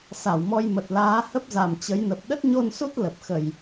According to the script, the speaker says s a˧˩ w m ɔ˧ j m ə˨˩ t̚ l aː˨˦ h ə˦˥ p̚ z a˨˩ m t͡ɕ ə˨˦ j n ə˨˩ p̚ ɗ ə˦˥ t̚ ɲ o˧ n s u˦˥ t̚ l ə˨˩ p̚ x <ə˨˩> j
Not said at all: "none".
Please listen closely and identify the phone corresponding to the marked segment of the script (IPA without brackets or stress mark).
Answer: ə˧˩˨